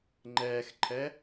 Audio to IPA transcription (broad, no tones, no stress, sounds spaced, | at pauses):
ŋ͡ǃ ɛː x ǃʰ ɛ